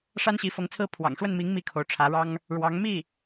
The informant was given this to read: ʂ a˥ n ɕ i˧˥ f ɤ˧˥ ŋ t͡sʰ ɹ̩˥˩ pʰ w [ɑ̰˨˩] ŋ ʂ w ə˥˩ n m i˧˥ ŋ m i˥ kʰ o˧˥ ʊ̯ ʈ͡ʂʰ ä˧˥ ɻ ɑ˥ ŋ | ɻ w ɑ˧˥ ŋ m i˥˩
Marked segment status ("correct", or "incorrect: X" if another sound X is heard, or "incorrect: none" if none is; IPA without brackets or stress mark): correct